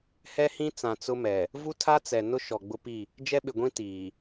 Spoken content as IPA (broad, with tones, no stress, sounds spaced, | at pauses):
h ɛ˦ h ĩ˦ t͡s ã˨ t͡s ʊ˦ m ɛ˨ | v u˦ tʰ a˦ t͡s ɛ˨ n ʊ˦ ʃ ɔ˨ ɡ͡b ʊ˦ p i˦˨ | d͡ʒ ɛ˦ ɓ ɪ˨ ɡʷ ĩ˦ t iː˨